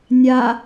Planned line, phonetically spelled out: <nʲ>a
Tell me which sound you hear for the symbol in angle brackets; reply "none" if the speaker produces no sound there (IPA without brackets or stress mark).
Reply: nʲ